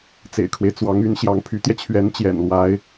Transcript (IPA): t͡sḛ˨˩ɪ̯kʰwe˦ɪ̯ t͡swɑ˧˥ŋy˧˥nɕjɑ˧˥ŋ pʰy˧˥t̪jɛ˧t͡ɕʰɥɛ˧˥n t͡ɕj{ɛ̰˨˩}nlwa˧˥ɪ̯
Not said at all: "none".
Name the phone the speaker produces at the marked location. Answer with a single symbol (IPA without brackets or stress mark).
ɛ̰˨˩